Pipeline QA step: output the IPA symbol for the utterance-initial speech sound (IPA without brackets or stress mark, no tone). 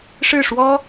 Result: ʂ